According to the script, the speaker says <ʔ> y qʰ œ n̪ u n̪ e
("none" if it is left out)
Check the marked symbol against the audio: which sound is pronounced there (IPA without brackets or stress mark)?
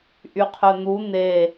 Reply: ʔ